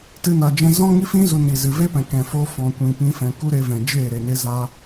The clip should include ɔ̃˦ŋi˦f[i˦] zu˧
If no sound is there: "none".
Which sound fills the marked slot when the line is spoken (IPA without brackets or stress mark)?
ĩ˦